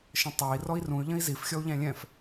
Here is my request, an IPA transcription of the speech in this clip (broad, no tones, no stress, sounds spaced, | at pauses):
ʃ ə̃ tˤ æ i̯ r ɔ i̯ r ũ y̯ ʎ ə̃ i̯ z i f xʲ ɔ u̯ ʎ æ̃ lʲ ɛ̃ f